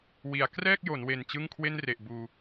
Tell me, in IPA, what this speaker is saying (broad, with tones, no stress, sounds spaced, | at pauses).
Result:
w i˩˦ a̯ k r ɛː˥˩ k̚ j o˩˦ n w e˨˩ n t͡ɕ ɯ˥˩ ŋ kʰ w e˥˩ n r e˨˩ ʔ b uː˧